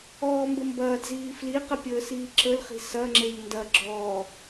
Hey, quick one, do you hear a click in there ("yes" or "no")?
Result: yes